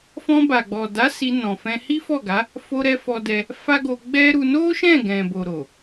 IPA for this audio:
f ɔ̃˧ b a˨ ɡ͡b ɔ˨ d a˨˦ s i˧ n ɔ̃˨ f ɛ̃˧ h i˦ f ɔ˦˨ ɡ a˨˦ | f o˧ ɾ ɛ˧ f ɔ˧ d ɛ˧ | f a˦ ɡ o˧ ɡ͡b ɛ˦ ɾ u˧ n o˦ ʃ ɛ̃˦˨ ɡ ɛ̃˨ b o˨ ɾ o˨

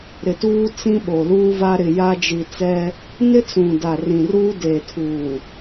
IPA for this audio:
ɾ ɪ˨ t uː˦ t͡s ĩ˦ ɓ o˨ l uː˦ v a˦ ɾ ɪ˨ j a˦ d͡ʒ i˨ t͡s ɛ˦ | n ɪ˦ t͡s ũ˨ d a˨ r ĩ˨ r uː˦ d eː˨ tʰ uː˨

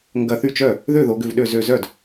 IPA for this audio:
ŋ ɡ ɐ˧˩ θ y˥˩ t͡ʃ œ˥˩ | ð ø˥˩ ð o˩˧ ɡ ʏ˧˩ v ɗ ø˧˩ z ø˧˩ z œ˥˩ d

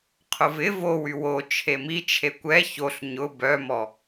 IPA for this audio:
qʰ ʊ v ɪ v o w y w o t͡ʃʰ e m i t͡ʃʰ e kʷ ɛ ç o ɬ ɲ ʊ b œ m ɔ

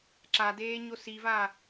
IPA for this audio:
ǁ a d eː ɲ o s i v a

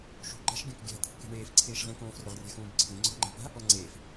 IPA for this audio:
ʃ ṳ ɡ͡ǃ a̤ ʃ ɡʲ õ k ɡʲ a̤ t̪ʰ ṳ k e̤ ɳ eː f ǀʰ eː ʃ ʁ ĩ k õː f r ʊ ʁ rʲ a̤ x ũː b ǀʰ ĩ ŋ͡ǀ o̤ ʁ ŋ͡ǃ a̤ p a̤ | ɔ ŋ͡ǀ eː f

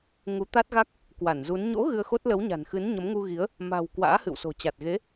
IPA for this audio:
ŋ u˨˦ t̪ a˦˥ t̚ ɣ a˦˥ k̚ | k w a˧˩ n z u˨˦ n ɲ o̰˧˥ ɣ ɨ˧ ə̯ x o˦˥ t̚ l ə˨˦ w ɲ a̤˨˩ n x ɨ˨˦ n ɲ ə˨˦ m ŋ u˧ ɣ i˨˦ ə̯ | m a̤˨˩ w k w a̰ː˧˥ h ɨ̰˧˨ w s o̤˨˩ t͡ɕ a˨˩ t̚ ɣ e˨˦

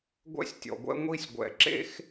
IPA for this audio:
ɡʷ ɛ̰˦ sʲ tʲ ɔ̰˨ ɡʷ ɛ̰˦ ŋʷ i˦ sʲ ɡʷ ɛ̰˨ ǁ ḛ˦ x

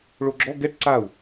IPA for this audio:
ɭ o ɡ͡ǁ ɔ ɡ ɛ ʈ ǀ a u̯

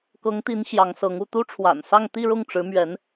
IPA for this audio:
k ɤ˧˥ ŋ t̪ i˧˥ n ɕ j ɑ˧˥ ŋ s ɤ˧˥ ŋ u˥˩ t̪ u˥ ʈ͡ʂʰ w a̰˨˩ n s ɑ˥˧ ŋ t̪ i˥˧ ɻ ʊ˥˩ ŋ ʈ͡ʂ ɻ̩˧˥ m ɥ ɛ˧˥ n

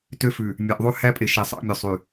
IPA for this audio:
t ø˦ f ʉ˨ | mʲ æ˨ ʔ ðˤ ʉ˦ h æ˦ pʼ e˨ ʃ e˨ sˤ ɑ̰˦ mʲ ø˨ sˤ y˨

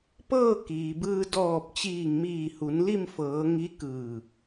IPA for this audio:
p ɤː˥˨ k iː˩ b ɯː˧ d ɔː˧˩ p̚ t͡ɕ iː˧˩ ŋ m iː˧˩ h u˩˧ n l i˥˨ m f ɤː˩˧ ŋ i˧˥ k ɯː˧˩

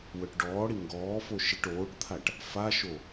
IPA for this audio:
w œ ʈ ɖ ɔː ɽ i ŋ ɡ ɔː f o ʃ i ʈ oː ʈ t̪ʰ a ʈ | f a ʃ o

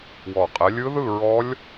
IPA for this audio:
w ɔ˨˩ qʼ ɛ˨˦ lʲ ɯ˦˥ ð ɯ˥˧ ɹ ɔ˦˥ lʲ

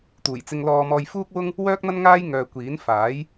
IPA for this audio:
t̪ uː˨˩ j t͡s ɪ˧ ŋ l ɔː˧ m ɔː˧ j f uː˥ k̚ w ʊ˥ ŋ | w œː˥ k̚ n̪ ɐ˥ n ŋ aː˥ j ŋ œː˧ kʷ iː˨˥ n f aː˨˥ j

